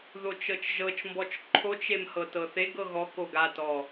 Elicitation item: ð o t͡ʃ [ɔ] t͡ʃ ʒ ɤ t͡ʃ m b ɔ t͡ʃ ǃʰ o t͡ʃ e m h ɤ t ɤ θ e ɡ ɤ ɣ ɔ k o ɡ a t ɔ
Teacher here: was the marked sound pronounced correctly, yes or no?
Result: no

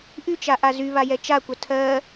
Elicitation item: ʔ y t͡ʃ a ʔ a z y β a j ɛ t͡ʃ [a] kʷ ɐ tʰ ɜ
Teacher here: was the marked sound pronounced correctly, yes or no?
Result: yes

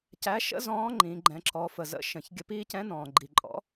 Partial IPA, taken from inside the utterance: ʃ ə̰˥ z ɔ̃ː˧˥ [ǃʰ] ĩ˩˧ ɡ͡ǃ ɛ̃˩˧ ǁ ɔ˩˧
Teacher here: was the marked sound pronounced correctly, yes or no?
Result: no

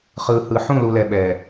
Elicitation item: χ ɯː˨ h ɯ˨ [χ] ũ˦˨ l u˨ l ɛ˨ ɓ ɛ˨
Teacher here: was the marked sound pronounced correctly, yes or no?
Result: no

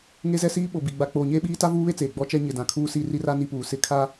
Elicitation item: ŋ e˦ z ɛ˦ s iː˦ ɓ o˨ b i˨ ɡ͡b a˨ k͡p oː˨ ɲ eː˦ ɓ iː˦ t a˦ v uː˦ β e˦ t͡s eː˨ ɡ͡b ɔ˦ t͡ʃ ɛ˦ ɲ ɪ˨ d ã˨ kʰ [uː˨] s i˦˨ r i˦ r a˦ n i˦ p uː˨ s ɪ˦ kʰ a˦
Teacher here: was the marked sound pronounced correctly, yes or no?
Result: no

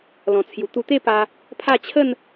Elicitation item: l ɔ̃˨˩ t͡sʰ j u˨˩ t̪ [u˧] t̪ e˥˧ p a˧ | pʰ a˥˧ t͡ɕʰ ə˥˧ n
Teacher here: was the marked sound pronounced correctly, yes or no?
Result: yes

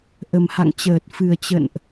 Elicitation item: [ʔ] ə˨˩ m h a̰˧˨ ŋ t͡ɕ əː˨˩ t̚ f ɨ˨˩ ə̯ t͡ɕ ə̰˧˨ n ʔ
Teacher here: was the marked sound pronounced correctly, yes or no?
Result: yes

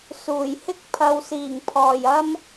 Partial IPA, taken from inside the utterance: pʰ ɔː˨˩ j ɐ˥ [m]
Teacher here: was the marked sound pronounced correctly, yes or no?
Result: yes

